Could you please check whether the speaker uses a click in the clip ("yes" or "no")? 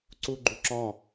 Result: yes